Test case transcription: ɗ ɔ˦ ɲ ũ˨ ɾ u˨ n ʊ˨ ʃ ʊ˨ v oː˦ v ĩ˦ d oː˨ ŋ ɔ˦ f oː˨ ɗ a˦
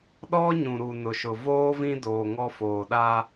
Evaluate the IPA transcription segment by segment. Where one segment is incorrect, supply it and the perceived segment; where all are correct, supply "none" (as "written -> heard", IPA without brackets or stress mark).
none